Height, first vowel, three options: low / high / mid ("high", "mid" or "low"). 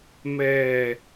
mid